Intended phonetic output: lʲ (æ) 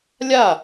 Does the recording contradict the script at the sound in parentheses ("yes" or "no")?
yes